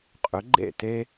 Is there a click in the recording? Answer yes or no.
yes